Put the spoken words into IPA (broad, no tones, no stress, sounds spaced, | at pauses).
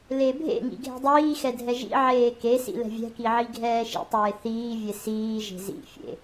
l e bʱ ḛ ŋ ḭ ɡʱ ɛ̤ dˤ iː x ɛ dʱ ɛ ʒ ḭ ʕ eː k e s ḭ l ɛ̤ vʲ ɛ̤ k i ʕ i ɡʱ ɛː ʃ ḭ tˤ eː θ iː vʲ e s iː ʒ e̤ z ḭ fʲ ḛ